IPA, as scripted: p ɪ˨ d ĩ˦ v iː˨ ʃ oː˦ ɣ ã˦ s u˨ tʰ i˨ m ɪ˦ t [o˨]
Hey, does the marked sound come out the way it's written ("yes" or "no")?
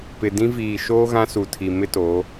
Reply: no